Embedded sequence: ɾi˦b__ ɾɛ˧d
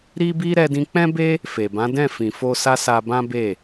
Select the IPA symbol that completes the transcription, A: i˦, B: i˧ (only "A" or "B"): A